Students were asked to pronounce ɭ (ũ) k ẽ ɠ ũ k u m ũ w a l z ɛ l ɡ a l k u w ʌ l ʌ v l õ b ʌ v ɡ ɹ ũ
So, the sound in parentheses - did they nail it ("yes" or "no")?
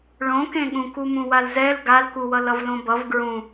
no